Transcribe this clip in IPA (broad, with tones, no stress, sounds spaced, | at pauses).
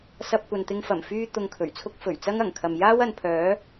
s ɐ˧ p̚ kʷ ɐ˨ n t̪ ɪ˧ ŋ f ɐ˨˩ m f yː˧ t̪ ʊ˧ ŋ kʰ ɵ˨˩ ɥ t͡sʰ ʊ˥ k̚ f ɵ˨˩ ɥ t͡s ɐ˥ ŋ ɐ˨˩ ŋ kʰ ɐ˨ m j aː˥ w ɐ˨˧ n pʰ œː˨˥